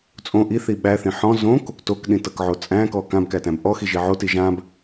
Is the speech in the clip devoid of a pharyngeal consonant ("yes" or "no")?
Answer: no